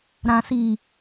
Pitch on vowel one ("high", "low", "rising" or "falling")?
low